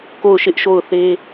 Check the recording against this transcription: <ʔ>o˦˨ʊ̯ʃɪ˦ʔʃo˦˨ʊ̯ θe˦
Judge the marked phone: incorrect: k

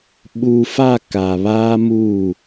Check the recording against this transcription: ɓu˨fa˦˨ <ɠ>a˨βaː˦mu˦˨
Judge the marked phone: incorrect: k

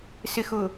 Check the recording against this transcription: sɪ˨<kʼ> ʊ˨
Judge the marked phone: incorrect: x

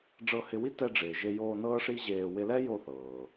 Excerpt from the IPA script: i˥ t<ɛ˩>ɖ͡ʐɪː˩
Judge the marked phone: incorrect: ɛ˧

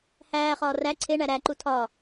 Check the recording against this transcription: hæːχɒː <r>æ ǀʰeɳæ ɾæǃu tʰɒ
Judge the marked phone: correct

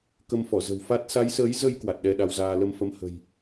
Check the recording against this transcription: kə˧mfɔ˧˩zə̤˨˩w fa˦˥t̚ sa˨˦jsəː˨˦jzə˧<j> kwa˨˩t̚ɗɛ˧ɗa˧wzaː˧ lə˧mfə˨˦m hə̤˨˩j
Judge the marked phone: correct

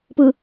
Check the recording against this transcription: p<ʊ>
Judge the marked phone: incorrect: ɯ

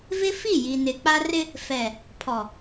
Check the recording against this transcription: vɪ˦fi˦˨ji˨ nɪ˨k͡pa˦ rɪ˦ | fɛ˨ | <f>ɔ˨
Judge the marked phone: incorrect: pʰ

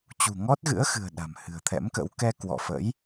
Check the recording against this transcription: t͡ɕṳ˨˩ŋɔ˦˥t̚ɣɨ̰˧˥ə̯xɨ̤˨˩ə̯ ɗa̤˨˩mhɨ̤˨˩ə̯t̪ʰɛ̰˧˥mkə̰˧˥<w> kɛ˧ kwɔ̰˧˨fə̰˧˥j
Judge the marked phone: correct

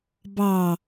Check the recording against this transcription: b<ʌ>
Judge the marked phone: incorrect: ɑ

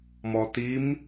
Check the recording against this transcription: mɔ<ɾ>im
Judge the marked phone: incorrect: t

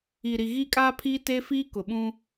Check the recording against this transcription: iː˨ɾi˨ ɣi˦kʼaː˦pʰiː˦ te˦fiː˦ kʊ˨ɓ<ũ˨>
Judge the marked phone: incorrect: ũ˦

